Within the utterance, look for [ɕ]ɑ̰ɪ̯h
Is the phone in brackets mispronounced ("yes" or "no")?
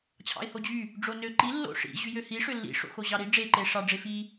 yes